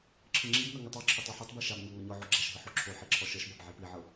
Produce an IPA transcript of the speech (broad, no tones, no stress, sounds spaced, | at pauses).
ǁʰ ɯ ŋ͡ǁ i b n ɤ ŋ ɯ tˤ ɔ ǁʰ ɤ tˤ ɔ ħ ɤ tˤ b i ʃ a b ɲ ɤ ŋ ɔ ɲ ɔ ʕ o ɡ͡ǁ a ʃ ɦ ɯ ħ o ǁʰ o ħ i ǁʰ ɔ ʃ ɤ ʃ b a b ʕ i p i ʕ ɤ